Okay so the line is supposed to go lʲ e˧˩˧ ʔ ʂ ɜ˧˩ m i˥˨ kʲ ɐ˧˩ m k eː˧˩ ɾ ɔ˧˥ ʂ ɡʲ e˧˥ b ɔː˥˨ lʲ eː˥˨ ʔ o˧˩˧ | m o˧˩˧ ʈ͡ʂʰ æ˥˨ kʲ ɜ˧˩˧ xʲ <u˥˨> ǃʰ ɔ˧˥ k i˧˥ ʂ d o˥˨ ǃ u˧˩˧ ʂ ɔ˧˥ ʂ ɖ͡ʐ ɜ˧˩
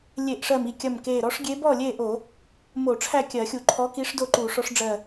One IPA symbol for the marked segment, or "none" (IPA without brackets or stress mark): u˧˩˧